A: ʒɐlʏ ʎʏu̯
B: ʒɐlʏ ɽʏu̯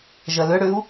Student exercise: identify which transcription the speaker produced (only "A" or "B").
B